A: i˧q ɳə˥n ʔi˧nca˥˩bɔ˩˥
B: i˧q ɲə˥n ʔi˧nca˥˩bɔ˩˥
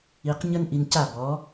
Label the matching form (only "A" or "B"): B